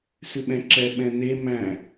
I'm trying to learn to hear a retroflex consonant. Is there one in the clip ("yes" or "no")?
no